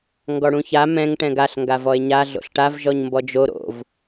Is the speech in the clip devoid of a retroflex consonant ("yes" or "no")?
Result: no